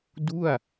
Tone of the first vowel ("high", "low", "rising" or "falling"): falling